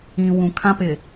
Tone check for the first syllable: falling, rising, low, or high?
low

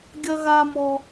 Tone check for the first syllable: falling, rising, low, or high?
high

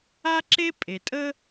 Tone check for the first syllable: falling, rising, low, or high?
high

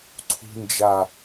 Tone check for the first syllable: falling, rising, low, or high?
low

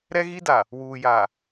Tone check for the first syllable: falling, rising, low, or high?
high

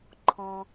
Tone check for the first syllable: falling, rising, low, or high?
low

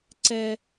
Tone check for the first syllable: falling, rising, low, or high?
high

